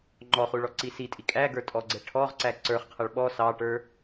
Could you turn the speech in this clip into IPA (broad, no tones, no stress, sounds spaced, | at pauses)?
ŋ͡ǃ ɔ χ u ɭ ɔ ǀ i s i tʼ i kʼ æ ɡ ə˞ tʼ ɔ ɡ͡ǀ ɛ ʈʰ ɔ ʁ ǀ æ ǀ ə˞ χ qʰ ʌ ɭ ɓ ɔ s ɑ ʈ ə˞